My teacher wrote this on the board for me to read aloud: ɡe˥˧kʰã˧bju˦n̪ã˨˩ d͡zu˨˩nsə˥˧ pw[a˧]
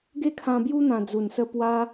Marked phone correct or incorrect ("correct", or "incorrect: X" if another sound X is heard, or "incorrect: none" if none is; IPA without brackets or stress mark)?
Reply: incorrect: a˦